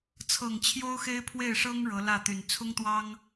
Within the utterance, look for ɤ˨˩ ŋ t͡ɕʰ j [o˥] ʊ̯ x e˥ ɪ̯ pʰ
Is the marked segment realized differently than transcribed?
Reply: no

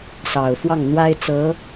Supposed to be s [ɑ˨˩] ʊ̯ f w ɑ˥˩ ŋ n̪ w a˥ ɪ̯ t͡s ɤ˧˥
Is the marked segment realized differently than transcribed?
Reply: no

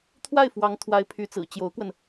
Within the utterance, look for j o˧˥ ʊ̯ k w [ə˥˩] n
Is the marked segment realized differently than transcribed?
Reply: yes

